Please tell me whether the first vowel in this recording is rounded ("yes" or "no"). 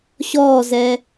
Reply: yes